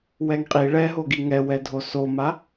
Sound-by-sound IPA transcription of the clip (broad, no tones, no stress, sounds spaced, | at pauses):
w ɛ ŋ qʼ i ɭ ɛ ɦ o ɡ i ŋ ɛ w ɛ dʱ o s o m a